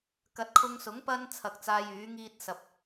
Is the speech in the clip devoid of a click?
yes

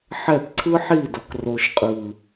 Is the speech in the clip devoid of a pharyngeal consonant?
no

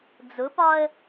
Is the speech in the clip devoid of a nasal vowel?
yes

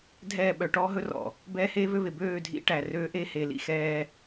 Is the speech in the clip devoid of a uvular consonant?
yes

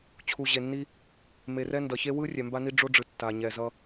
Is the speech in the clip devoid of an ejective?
yes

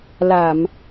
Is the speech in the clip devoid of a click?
yes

